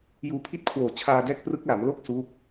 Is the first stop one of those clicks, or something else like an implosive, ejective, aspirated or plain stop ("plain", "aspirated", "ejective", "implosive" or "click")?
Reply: aspirated